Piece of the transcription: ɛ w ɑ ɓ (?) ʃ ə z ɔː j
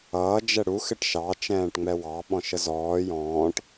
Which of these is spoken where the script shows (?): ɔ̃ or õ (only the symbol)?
ɔ̃